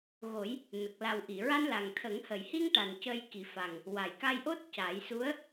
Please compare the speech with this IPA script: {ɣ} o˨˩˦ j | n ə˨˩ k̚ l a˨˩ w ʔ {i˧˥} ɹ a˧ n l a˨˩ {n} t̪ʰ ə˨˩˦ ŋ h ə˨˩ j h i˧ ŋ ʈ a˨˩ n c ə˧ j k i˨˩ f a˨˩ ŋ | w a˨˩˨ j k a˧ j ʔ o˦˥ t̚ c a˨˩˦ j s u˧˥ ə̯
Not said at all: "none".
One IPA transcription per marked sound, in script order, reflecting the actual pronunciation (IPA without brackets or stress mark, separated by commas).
ɣ, i˨˩˨, ŋ